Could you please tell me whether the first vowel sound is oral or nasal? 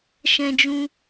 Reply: nasal